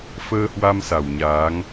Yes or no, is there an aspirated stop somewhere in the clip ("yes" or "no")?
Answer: no